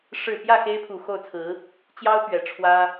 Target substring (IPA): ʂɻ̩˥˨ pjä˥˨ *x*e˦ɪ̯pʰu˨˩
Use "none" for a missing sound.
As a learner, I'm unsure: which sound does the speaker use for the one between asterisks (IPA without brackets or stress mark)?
x